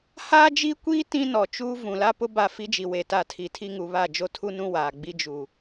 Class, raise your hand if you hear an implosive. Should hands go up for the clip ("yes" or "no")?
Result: no